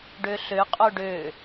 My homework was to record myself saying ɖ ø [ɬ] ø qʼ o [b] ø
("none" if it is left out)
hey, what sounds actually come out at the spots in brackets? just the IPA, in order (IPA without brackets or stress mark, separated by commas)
ɬ, ɖ